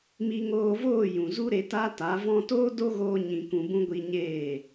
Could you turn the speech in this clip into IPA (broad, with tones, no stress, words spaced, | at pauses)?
mi˧ŋoː˧voː˦˨ jũ˨zu˦ɾe˧ ta˦ta˨˦vɔ̃˦ toː˦do˦ɣoː˧ ɲĩ˨kũ˨ bũ˧ɡʷi˧ ɲeː˦˨